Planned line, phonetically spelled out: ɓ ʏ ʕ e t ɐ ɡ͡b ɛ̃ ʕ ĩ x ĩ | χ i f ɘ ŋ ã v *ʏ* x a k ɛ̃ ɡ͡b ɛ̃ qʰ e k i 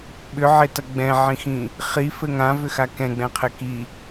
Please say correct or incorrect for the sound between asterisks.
correct